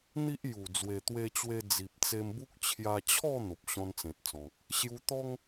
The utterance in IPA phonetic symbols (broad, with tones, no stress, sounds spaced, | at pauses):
n̪ i˦ ʔ j u˨˩ d͡z w e˨˩ t̪ w e˧ t͡ɕ w e˧ d͡z i˨ p̚ t͡s e˧ m b u˦ k̚ t͡ɕʰ j a˧ t͡ɕʰ ɔ˥˧ n̪ o˨ p̚ ɕ ɔ̃˧ n t͡s ẽ˨ t̚ t͡s ɔ̃˨ k̚ | ɕ j u˧ t̪ ɔ˦ ŋ